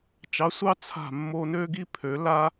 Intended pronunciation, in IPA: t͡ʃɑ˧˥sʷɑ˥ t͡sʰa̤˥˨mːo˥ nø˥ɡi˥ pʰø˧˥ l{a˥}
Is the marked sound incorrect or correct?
correct